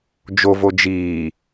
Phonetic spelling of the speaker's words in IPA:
d͡ʒ o v o d͡ʒ iː

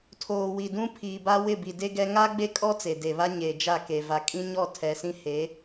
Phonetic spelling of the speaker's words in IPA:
tʰ oː˨ w i˨ d ũ˦ pʰ iː˨ b a˦ w ɪ˦˨ b i˨ d e˦ ɡ ɛ˦ ŋ a˦ ɡ͡b e˦ kʼ ɔ˦ t͡s e˨ d e˨ β a˦ ɲ e˨ d͡ʒ a˦˨ k e˨ v a˨ kʼ ĩ˦ ɲ ɔ˦˨ tʰ ɛ˨ s ĩ˦ h e˨˦

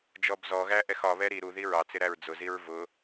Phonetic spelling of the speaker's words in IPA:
d͡ʒ ɔ b z ɔ ɣ æ ʔ ɛ x ɒ β ɛ ɾ i ɾ u ð i ɹ ɑ t͡s ɪ ɾ æ ɹ d͡z ʊ z i ɹ v ʊ

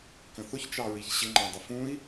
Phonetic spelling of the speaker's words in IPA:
k ə̃ θ ʊ ç t͡ʃ ɑ ɹ i ç ɕ ɪ ŋ͡ǃ æ̃ dˤ ə f ũ i̯

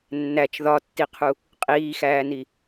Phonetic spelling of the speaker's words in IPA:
nː æ t͡ʃ ð ɒ tː i qʰ u | qʼ iː x æː n i

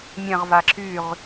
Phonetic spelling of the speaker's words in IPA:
mʲ ɐ̃ ʁ v a ǁ y ʁ

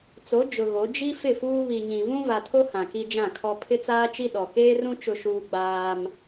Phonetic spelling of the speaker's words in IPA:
t͡s o˨˦ d͡ʒ ʊ˨ ɣ o˨˦ d͡ʒ i˦ f ɪ˦˨ f uː˦ β i˨ ɲ ĩ˨ v ũ˦ v a˨ tʰ o˦ h ã˨ k i˦ d͡ʒ ã˦˨ kʰ ɔ˦ pʰ ɪ˦ t͡s aː˦ t͡ʃ i˦ ɗ ɔ˨ k eː˦ r ũ˦ t͡ʃ ʊ˦ ʃ uː˦ ɡ͡b aː˦ m

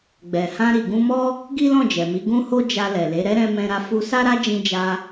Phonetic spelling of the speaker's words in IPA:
ɡ͡b ɛ˨ h ã˧ ɾ i˨ ɡ ũ˧ m ɔ˦ | ɡ i˦ l ɔ̃˦˨ d͡ʒ ɛ˨ m i˨˦ ɡ ũ˦ h o˦ d͡ʒ a˧ l ɛ˨ l e˨˦ ɾ ɛ˦ ɾ ɛ̃˧ m ɛ̃˧ ɾ a˧ f u˧ s a˦ ɾ a˦ d͡ʒ ĩ˧ d͡ʒ a˧

